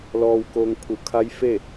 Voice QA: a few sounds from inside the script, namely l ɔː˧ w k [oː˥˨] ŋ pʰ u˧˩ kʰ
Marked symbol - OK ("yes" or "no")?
no